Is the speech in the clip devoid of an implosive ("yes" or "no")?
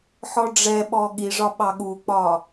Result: no